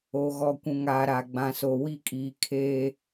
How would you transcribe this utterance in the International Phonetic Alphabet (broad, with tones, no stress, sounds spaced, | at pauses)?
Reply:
o˨ ɣ ɔ˨ kʷ ũ˨ ŋ aː˨ ɾ a˨ ɡ͡b ã˨ s o˨ w i˦ kʼ iː˨ kʰ eː˦